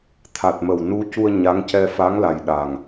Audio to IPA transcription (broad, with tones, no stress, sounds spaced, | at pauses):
t̪ʰ a˨˩ t̚ m ə˨˩ w n u˧˥ c u˧ ə̯ ɲ a˧˥ ŋ c ɛ˧ f a˧˥ ŋ l a˨˩ j ɗ a˨˩ ŋ